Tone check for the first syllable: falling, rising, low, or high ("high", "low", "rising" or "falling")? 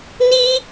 high